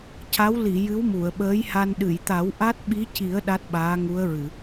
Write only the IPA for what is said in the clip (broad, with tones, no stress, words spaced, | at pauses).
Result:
ca˧˥w li˨˩˨ jɨ˧˥wmu˨˩˨ə̯ɓəː˧˥jha˧n ɗɨ˨˩˨jt̪a˨˩˦w ʔa˦˥t̚ɓi˧˥ci˨˩˦ə̯ ɗa˦˥t̚ ɓaː˧˥ŋu˧˥ə̯ɹɨ˨˩˨